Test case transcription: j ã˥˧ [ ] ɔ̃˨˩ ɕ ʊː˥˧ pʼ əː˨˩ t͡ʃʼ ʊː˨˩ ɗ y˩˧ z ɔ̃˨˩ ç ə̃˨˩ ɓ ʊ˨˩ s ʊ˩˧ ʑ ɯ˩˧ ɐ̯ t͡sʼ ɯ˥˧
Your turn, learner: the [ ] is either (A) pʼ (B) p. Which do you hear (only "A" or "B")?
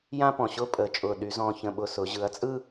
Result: B